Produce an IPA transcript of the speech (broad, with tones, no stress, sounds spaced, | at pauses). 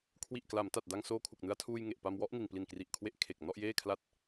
kʰ w i˨˩ ʔ k l a˩˦ m t a˨˩ t̚ d a˧ ŋ s oː˧ kʰ u˨˩ k̚ n ɯ˧ a̯ tʰ uː˧ j ŋ e˨˩ ʔ p a˧ m w ɔ˦˥ ʔ n i˨˩ n p l i˨˩ n k r i˨˩ ʔ kʰ w e˦˥ ʔ kʰ e˨˩ k̚ n ɔ˥˩ ʔ j eː˥˩ kʰ l a˥˩ t̚